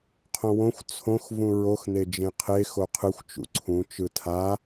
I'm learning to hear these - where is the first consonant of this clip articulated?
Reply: uvula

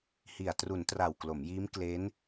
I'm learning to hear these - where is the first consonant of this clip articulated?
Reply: throat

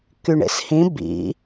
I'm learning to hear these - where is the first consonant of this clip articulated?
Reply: velum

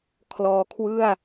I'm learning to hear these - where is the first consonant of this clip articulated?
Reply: velum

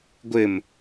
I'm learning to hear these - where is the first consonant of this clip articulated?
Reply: velum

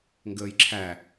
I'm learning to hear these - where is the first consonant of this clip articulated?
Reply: velum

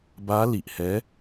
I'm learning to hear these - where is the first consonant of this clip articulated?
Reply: lips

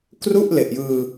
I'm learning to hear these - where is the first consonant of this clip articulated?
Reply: velum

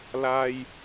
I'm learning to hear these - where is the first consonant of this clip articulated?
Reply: tongue tip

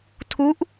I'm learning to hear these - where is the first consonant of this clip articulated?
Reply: tongue tip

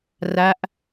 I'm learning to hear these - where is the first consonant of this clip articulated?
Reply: tongue tip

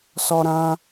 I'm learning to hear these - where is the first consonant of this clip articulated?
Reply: tongue tip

